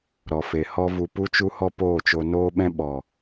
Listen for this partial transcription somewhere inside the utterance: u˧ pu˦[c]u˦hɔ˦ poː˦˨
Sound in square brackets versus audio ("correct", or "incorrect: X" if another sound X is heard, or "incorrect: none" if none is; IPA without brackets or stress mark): incorrect: t͡ʃ